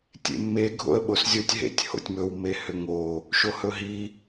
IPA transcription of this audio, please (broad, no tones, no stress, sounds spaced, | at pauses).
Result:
tʲ ḛ mː e ɡʱ o̰ ə̯ ɓ o s zʲ o tʲ ɦ ḛ tʲ h o̰ tʲ m ɵ w m e h ʏ ŋ o | ʃ o h ɵ ɦ i